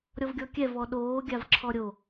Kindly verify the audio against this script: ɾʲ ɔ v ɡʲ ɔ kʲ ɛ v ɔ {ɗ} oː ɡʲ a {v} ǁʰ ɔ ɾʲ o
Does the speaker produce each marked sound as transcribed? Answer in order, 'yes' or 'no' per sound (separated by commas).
yes, yes